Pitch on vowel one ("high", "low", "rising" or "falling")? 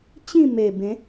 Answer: falling